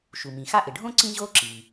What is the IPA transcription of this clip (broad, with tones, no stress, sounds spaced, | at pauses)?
ʃ u˩ m ĩ˩ x a˥ ʔ ɪ˩ ɖʱ õ˥ ǀ ĩ˥ ʑ o˥ ǁ i˩